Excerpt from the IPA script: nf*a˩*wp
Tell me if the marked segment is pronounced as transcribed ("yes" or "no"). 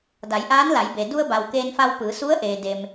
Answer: no